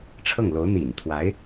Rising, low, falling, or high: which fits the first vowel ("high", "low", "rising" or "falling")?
falling